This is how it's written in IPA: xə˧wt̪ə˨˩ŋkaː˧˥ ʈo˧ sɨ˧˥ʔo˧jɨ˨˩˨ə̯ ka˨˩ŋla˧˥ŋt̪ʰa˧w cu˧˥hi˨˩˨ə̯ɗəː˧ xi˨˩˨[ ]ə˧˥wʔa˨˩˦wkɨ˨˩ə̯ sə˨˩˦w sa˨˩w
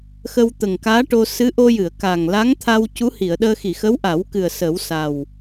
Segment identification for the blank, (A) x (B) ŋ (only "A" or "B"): A